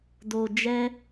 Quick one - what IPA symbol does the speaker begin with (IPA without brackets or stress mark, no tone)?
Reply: d